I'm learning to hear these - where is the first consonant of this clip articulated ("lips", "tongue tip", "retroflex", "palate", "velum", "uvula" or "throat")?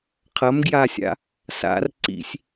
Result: uvula